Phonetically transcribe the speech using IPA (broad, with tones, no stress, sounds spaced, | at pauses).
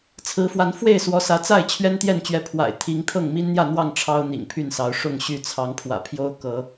t͡sʰ ɹ̩˨˦ f w a˨˦ n f w e˥˨ ɪ̯ s w ɔ˨˦ s ä˨˦ t͡s a˥˨ ɪ̯ t͡ɕʰ ɥ ɛ˦ n t̪ j ɛ˥˨ n t͡ɕ ɥ ɛ˨˦ pʰ w a̰˨˩ ɪ̯ t̪ʰ i˨˦ ŋ t̪ʰ ɤ˥˨ ŋ m i˦ n n̪ j ä˥˨ n̪ w ɑ˥˨ ŋ ʈ͡ʂʰ ɑ˦ ʊ̯ n̪ ḭ˨˩ ŋ pʰ y˥˨ n s ɑ˨˦ ʊ̯ ʂ ʊ˥˨ ŋ ɕ y˥˨ t͡sʰ ɑ˨˦ ŋ pʰ w ä̰˨˩ pʰ j o˦ ʊ̯ k ɤ˨˦